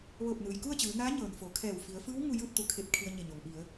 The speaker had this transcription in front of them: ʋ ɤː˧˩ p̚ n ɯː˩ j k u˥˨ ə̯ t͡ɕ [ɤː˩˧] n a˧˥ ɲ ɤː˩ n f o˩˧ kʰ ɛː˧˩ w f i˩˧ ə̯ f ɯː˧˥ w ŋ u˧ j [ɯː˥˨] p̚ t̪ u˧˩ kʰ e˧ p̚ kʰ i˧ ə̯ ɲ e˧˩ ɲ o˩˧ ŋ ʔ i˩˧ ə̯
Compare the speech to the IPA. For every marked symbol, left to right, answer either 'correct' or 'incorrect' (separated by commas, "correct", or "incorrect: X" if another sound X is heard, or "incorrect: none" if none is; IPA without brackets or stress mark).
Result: incorrect: ɯː˩˧, correct